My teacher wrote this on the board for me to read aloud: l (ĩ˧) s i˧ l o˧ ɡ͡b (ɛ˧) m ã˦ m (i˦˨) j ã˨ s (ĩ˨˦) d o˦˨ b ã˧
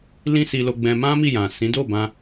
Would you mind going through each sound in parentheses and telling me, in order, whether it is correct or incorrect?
incorrect: ĩ˦, incorrect: ɛ̃˧, correct, correct

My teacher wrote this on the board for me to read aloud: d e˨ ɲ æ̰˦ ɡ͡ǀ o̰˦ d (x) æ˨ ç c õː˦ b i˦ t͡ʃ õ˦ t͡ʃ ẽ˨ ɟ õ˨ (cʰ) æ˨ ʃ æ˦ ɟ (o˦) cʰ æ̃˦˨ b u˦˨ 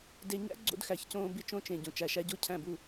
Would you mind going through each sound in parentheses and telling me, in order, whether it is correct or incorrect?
correct, incorrect: t͡ʃ, correct

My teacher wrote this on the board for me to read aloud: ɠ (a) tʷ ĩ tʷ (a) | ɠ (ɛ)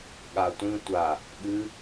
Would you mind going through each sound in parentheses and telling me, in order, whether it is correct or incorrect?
correct, correct, incorrect: ɨ

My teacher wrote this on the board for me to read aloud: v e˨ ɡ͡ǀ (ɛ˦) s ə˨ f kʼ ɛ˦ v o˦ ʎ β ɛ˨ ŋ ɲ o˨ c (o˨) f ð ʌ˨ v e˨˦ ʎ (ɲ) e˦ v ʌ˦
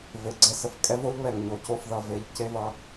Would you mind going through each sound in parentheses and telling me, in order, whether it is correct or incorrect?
correct, incorrect: o˦˨, incorrect: c

